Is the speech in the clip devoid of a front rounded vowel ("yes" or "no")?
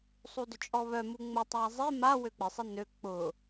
no